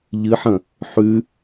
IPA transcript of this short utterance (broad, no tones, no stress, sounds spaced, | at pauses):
ʎ ɨ ħ ɐ̃ | ħ ʉ